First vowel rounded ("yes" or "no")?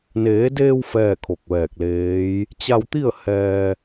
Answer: no